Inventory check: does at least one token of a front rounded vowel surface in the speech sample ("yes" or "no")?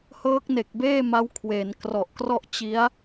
no